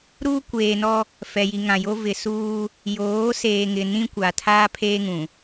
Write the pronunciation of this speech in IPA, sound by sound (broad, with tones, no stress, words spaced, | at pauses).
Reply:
ɾuː˦kʷeː˨nɔ˦ | fɛ˨ji˨ŋã˨jo˦ vɪ˨suː˦ | joː˨˦ seː˨ŋɪ˨ nĩ˦kʷa˨tʰaː˦ pʰeː˦ŋũ˨